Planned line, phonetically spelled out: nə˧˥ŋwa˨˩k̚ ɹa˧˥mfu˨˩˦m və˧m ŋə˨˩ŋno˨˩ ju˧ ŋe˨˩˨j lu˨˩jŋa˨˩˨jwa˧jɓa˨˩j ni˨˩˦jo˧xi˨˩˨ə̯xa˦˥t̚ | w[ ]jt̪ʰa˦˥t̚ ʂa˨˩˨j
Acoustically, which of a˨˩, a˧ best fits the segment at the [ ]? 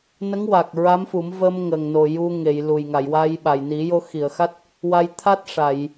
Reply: a˧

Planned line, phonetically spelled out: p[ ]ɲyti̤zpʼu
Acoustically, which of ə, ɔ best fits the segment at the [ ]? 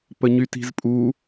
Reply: ə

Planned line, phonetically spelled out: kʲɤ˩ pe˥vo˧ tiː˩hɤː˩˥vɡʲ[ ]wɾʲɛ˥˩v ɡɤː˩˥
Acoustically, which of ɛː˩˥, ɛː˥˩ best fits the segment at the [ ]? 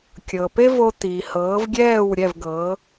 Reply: ɛː˥˩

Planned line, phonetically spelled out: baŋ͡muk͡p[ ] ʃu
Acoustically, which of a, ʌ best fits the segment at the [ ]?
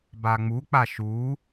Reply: a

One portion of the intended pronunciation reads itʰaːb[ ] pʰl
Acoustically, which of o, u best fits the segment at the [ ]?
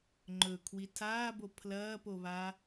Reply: o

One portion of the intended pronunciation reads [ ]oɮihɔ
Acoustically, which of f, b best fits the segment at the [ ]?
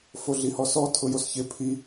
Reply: f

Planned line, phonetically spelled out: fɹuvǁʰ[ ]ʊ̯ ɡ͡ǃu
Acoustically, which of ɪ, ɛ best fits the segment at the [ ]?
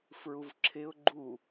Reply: ɪ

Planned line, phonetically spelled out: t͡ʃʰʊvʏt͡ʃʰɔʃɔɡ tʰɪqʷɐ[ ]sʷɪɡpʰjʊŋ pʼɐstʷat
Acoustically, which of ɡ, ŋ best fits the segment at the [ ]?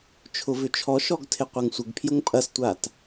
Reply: ŋ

